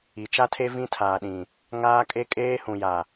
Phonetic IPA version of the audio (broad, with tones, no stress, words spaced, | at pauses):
i˨t͡ʃa˦tʰe˦ vĩ˦tʰaː˨ɗĩ˨ | ŋaː˦kʼe˦ kʼeː˦hũ˨ja˨